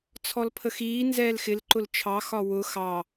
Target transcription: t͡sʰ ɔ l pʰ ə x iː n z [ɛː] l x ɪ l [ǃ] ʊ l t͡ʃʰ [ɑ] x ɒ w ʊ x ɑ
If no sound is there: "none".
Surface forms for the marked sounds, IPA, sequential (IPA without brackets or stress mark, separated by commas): ɛː, ǃ, ɑ